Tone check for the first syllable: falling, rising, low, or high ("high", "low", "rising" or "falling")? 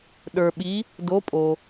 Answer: low